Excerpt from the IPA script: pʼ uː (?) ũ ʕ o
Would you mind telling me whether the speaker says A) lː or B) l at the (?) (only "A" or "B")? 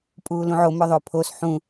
B